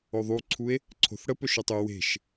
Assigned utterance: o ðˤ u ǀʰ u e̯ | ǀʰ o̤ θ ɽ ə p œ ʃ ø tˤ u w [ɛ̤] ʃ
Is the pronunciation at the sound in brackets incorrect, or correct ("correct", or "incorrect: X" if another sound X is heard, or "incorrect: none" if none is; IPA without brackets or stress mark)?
incorrect: e̤